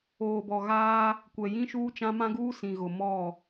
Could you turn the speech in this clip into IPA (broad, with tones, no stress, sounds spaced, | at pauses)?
oː˨ b ɔ˨ ɣ aː˦ | kʷ ɛ˨ j ĩ˦ ʃ uː˦ t͡ʃ ã˦ m ã˦ ɡ uː˦ s ĩ˨ ɣ ʊ˨ m ɔ˦˨